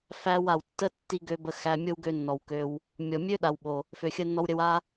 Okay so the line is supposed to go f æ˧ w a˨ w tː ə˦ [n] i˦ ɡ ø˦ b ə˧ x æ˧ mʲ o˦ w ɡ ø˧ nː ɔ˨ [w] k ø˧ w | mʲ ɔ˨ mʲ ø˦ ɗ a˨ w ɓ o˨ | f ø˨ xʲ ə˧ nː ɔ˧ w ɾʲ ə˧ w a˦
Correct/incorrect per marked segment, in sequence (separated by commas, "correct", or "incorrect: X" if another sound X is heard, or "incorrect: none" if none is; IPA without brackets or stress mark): incorrect: tː, correct